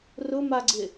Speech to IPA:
rʊmaɡ͡ǀɪ

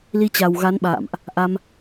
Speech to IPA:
li˧t͡ɕa˨˩wɣa˨˦nɓa̰ː˧˨mʔ | ʔa˧m

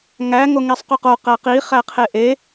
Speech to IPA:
ŋæ ŋoŋisˤquqo qæqi χæqʰeʔe

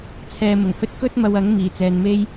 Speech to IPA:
t͡sʰɛː˧mʊ˨˩ŋhɵ˥t̚ kɵ˥t̚ mɐ˧wɐ˨˥ŋ miː˨˩t͡sɛː˨nme˥j

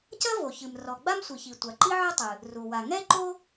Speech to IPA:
cɐ˥vo˩çɨ˩m rɔ˩ɡ͡ba˥msʷi˩çi˩ tʷa˩ǃi˥ʕɨ˥tˤɨ˩ | ru˩wa˩ ŋɛ˥ ǃo˥

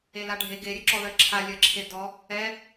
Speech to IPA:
elaɖʱe ɡeɾʲɘǁɔðɜ ǁʰalʲɜ ǁʰedɔ | ɛ

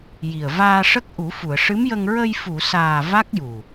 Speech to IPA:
ji˨˩ə̯ vaː˧ʂə˦˥k̚ ʔu˨˩˦fu˨˩˨ə̯ ʂɨ˧˥mjə˧ŋ ɹə˧jfu˨˩˨saː˨˩ va˦˥k̚ju˨˩

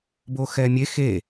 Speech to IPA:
boxɛmʲe xe

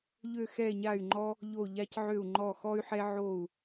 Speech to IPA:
ʎø˧˩xɛ˧˩ɲa˧˩y̯ŋ͡ǃɔ˧ | ʎo˧˩ ʎa˧cʕø˧˩u̯ŋ͡ǃɔ˧˩ xɔ˧y̯ħɛ˧ ʕo˧˩u̯

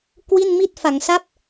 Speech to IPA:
kwi˥˩nmi˥˩t̚ fa˩˦ŋsa˥˩p̚

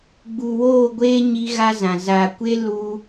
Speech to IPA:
ɡ͡bu˨woː˦˨ɡʷeː˦ ɲi˦ɣa˦zã˨ za˨kʷe˦ lu˦

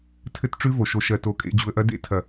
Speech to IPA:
tʰɘ˦tʈ͡ʂʉ˦vo˨ ʃo˨ʃɜ˨to˨ kʼḛ˨ d͡ʑu˨ə̯ʔɐ˦dḛ˦ tʰɐ˨

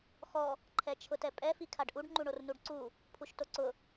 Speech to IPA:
xɔ | ǃʰɛt͡ʃʰʊtɛpʼɛ fikʰaɖʔuɖ ŋ͡ǃuɳornuɖǀu | pʰuʃtoǀʊ

